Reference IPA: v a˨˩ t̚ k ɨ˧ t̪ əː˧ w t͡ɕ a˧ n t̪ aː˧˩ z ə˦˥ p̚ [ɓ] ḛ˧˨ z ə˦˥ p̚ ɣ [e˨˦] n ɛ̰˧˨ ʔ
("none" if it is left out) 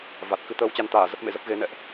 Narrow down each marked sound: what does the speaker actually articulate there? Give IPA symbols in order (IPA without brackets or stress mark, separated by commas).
m, e˨˦